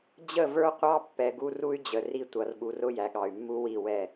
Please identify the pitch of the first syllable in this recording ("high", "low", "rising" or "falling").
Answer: falling